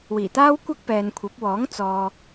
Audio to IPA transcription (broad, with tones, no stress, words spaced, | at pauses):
wiː˨˩t̪aː˥w kʷɐ˥k̚pɛː˨nkʷʰɐ˨˥p̚wɔː˨˥ŋ t͡sɔː˨